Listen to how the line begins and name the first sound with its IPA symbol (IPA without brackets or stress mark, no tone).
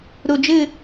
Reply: ɾ